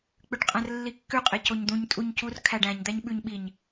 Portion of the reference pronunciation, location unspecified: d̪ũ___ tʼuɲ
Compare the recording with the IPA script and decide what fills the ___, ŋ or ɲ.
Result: ɲ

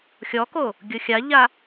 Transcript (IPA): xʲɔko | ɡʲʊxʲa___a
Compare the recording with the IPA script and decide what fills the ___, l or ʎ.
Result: ʎ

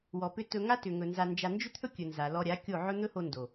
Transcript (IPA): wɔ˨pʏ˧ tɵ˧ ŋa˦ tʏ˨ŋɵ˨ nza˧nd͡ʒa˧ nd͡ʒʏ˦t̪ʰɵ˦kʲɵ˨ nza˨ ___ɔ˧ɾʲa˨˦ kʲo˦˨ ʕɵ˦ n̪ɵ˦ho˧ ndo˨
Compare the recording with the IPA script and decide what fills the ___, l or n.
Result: l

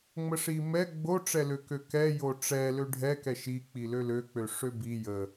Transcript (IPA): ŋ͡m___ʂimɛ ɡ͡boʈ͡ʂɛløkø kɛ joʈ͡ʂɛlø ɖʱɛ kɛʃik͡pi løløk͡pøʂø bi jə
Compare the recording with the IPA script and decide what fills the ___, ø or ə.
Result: ə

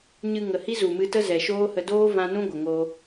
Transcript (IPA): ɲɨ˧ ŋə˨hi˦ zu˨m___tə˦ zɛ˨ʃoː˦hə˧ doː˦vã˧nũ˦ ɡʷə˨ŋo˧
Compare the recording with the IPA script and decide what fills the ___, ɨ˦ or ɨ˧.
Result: ɨ˧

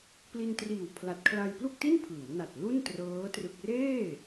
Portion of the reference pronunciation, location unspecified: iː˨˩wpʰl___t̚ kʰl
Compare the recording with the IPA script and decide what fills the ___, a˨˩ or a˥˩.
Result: a˨˩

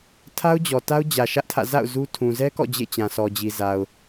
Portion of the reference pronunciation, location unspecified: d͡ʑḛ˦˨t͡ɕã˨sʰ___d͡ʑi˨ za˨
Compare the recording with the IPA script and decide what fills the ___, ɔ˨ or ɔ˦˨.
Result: ɔ˨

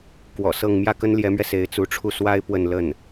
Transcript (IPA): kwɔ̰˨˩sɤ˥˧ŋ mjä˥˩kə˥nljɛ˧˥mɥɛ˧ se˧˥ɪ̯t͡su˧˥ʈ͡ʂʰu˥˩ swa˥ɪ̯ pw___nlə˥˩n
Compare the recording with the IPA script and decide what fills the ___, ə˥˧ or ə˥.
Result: ə˥˧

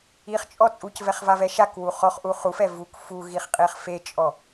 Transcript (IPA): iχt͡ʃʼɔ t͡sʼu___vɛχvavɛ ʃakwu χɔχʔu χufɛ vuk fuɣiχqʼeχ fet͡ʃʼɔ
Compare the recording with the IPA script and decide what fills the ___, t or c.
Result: c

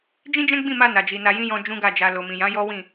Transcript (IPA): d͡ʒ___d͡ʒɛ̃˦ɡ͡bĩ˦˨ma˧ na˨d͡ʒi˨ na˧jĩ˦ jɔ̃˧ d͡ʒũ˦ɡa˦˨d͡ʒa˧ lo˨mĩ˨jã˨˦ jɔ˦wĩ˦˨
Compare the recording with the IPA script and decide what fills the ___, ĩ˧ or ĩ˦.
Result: ĩ˦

